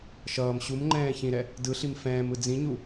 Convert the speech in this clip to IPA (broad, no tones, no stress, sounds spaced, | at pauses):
ʃ ʌː m ɕ u m ŋ͡ǃ ɛ̃ː ç ĩ ɾ ɛ | d ɯ ɬ i m f ɛ̃ː m ɯ d͡z ĩ ɲ u